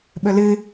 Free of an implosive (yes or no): no